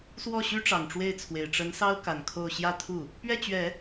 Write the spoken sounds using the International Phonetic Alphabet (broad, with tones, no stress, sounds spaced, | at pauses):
s w ɔ˥˩ ɕ y˥ ʈ͡ʂ ɑ˨˩ ŋ ʈ͡ʂ w e˥˩ ɪ̯ t͡sʰ w e˨˩ ɪ̯ ʈ͡ʂ ə˧˥ n s ɑ˥ ʊ̯ k a˨˩ n kʰ o˥˧ ʊ̯ ɕ j ä˥˧ t̪ʰ u˥˩ | p ɥ ɛ˥˩ t͡ɕ ɥ ɛ˨˩˦